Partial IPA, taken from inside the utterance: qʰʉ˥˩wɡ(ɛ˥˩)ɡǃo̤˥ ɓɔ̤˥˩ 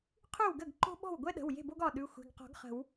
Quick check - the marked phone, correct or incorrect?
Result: incorrect